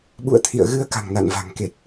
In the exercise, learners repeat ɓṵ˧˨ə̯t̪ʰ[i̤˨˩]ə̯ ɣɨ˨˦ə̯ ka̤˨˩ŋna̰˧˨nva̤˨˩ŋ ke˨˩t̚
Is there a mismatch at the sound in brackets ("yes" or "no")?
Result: yes